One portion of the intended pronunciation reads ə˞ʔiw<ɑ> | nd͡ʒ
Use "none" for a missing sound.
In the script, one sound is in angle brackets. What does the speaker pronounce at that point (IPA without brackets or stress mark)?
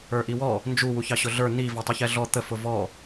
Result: ɔ